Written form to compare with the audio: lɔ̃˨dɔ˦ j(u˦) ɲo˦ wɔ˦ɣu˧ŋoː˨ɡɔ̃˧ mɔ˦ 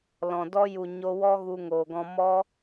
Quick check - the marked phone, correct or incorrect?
incorrect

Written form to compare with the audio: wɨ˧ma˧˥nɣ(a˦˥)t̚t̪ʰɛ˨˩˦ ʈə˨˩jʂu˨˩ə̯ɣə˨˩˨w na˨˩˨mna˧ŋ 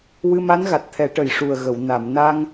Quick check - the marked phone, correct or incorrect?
incorrect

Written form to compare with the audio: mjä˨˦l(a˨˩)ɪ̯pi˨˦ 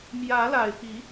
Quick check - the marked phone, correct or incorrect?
correct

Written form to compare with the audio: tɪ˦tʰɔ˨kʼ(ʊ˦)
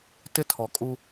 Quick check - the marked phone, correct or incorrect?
incorrect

